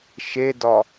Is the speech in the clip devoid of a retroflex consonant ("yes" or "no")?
yes